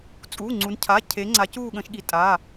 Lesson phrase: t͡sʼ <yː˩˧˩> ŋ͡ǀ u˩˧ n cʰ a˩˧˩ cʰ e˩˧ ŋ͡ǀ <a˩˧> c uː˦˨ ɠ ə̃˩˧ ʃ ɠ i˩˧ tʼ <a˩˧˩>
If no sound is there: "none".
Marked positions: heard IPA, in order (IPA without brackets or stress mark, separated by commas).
uː˩˧˩, a˩˧, a˩˧˩